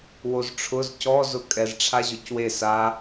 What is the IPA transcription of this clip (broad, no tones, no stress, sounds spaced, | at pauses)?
w o z ʈ͡ʂʰ ʊ z c ɔ z ʊ kʼ ɛ z ʈ͡ʂʰ a ʑ ʊ c w e s a